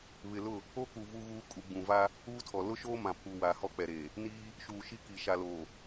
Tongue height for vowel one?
high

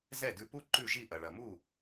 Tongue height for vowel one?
mid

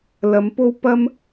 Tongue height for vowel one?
low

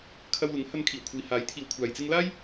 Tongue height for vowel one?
low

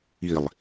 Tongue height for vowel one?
high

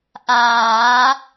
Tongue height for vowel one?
low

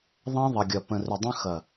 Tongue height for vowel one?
low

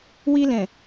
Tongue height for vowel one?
high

